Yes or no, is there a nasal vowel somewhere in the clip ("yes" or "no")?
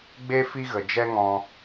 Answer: yes